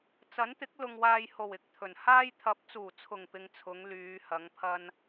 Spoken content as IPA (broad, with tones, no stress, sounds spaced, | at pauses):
t͡s ɐ˨˥ n t̪ ɪ˨˥ k̚ l ʊ˨ ŋ w aː˨ j h o˨˩ w ɪ˨ k̚ t̪ʰ ɵ˨˩ n h aː˥ j t̪ʰ ɐ˨˥ p̚ t͡s uː˨˩ t͡sʰ ʊ˨˩ ŋ p ɪ˧ ŋ t͡sʰ ʊ˨˧ ŋ l yː˨˧ h ɐ˨˥ ŋ pʰ ɐ˥ n